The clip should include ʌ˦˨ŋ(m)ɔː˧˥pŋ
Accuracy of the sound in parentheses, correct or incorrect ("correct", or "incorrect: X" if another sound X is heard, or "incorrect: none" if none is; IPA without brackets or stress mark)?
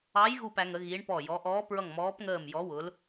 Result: correct